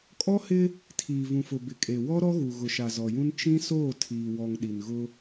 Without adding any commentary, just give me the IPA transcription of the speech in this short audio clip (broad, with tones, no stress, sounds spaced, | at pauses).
kʼ ɔ˦ h ɪ˦ | tʰ iː˨ v ũ˨ f ʊ˨ b ɪ˨ kʼ e˨ w ɔ˦ ɾ ɔ˦ ɣ u˨ ɣ ʊ˨ ʃ a˨ z ɔ˨ j ũ˦ n t͡ʃ ĩ˦ s oː˦˨ tʰ iː˨ w ɔ˨ ŋ ɗ i˨ n ɣ ʊ˦